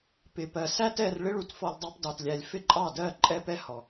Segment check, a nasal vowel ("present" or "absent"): absent